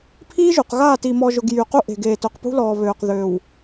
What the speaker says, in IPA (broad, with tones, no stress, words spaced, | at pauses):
pʰiː˦ʒu˨qɣaː˦˨ tiː˨mɔː˨ʒʊ˨ɡ jy˨qu˦ ʔe̤˨ɡeː˨ tʊ˨qpṳ˦lɔː˨ βøː˨qðøː˨w